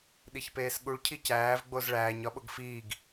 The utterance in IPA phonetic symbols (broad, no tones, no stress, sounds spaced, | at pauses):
ɗ i ç p eː s ɠ u ɭ cʰ i c æː v ɡ͡b o z ɭ æː ɲ ɒ ɓ o ɡ f iː ɡ